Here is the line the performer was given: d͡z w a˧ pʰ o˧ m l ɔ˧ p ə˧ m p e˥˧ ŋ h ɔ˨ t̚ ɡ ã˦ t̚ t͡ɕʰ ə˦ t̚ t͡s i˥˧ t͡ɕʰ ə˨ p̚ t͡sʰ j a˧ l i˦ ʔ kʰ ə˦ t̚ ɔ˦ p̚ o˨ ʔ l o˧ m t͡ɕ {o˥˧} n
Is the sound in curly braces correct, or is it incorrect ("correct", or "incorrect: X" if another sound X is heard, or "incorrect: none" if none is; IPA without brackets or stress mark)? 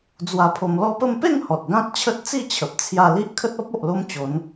incorrect: o˨˦